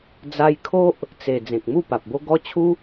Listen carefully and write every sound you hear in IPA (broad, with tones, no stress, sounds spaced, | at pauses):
d͡z a˧ j kʰ o˦ ʔ | t͡s e˨˩ d͡z ẽ˨ k̚ m u˥˧ p a˨ p̚ b o˦ ɡ ɔ˦ t͡ɕʰ u˦